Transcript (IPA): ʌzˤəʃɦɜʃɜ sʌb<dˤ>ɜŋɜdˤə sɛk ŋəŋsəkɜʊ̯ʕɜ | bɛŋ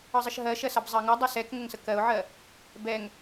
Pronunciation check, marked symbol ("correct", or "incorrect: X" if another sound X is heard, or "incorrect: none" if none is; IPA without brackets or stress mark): incorrect: zˤ